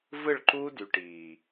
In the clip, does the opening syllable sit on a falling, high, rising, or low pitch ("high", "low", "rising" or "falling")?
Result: falling